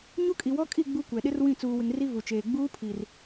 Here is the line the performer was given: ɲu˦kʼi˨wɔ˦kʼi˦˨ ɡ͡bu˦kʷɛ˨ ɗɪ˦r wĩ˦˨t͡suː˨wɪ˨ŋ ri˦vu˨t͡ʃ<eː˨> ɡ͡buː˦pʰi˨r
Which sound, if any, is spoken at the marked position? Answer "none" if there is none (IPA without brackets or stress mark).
eː˨